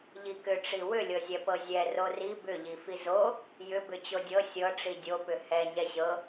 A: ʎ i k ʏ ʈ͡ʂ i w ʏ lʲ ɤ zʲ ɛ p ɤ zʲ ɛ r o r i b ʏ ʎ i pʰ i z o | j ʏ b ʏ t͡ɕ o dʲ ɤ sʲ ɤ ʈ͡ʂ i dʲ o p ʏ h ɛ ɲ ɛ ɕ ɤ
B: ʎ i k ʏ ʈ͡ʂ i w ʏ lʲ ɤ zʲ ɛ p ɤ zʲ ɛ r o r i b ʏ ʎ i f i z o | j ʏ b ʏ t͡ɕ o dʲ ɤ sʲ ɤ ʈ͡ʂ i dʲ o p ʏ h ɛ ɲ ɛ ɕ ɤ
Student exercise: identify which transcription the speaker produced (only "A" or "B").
B